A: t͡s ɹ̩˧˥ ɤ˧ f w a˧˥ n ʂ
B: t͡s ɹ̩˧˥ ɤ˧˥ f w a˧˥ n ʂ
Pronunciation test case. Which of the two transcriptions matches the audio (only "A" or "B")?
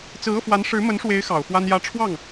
A